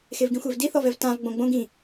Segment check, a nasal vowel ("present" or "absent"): present